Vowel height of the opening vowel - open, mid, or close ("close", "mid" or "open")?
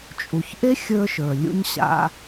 close